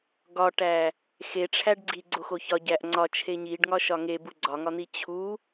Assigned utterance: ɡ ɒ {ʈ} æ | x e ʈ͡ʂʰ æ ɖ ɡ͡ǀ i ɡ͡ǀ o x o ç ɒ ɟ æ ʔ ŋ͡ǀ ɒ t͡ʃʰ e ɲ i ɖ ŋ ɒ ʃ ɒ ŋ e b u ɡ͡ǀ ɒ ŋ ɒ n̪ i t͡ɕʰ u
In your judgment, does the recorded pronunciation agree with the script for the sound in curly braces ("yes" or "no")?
yes